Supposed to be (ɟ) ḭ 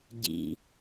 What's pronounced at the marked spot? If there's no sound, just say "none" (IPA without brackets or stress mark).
ɟ